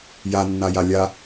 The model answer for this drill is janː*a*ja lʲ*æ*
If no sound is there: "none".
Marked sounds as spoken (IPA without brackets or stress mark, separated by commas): a, a